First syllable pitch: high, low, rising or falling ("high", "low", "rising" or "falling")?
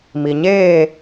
low